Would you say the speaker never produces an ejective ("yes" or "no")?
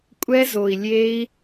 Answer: no